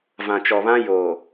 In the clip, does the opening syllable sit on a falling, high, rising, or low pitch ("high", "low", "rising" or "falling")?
low